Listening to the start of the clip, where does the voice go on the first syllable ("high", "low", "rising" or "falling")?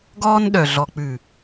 high